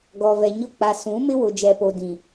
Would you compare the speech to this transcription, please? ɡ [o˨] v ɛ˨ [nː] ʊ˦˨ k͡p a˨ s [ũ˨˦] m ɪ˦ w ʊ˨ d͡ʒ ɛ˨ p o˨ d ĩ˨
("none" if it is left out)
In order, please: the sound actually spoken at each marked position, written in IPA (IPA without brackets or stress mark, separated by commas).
ɔ˨, ɲ, ũ˨˦